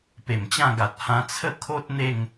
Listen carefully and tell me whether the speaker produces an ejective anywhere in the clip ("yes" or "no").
no